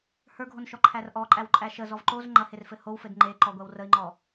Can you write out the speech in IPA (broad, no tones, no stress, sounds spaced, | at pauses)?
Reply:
h ə˞ ɡʱ o n ʃ ɔ ǃʰ æ r ʔ ɔ ǃʼ æ w ǃʼ æ ʃ ə z ɔ v ǃ o z ŋ͡ǃ ɐ h e r f ɘ h o w f ɘ d ŋ͡ǃ e ǃ ɔ ɡʷ æ w r ə i̯ ŋ͡ǃ ɔ